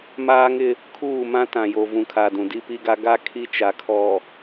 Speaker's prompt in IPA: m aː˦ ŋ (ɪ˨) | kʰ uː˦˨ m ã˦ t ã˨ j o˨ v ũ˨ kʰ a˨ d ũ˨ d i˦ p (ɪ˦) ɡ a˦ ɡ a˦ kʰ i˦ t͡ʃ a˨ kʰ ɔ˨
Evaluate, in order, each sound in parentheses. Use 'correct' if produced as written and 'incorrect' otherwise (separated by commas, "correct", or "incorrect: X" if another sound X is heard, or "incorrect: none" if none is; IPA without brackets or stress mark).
incorrect: ɪ˦, incorrect: i˦